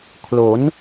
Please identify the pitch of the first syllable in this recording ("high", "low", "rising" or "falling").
rising